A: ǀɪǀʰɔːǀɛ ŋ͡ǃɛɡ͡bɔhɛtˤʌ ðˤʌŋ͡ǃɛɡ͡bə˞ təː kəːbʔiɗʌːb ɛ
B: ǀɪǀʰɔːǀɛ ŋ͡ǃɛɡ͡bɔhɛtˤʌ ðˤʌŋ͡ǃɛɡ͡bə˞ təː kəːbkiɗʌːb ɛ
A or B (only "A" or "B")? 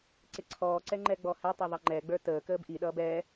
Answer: A